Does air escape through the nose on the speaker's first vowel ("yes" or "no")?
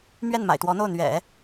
no